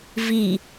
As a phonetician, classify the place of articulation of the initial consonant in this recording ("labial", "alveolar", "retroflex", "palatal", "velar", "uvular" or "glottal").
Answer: labial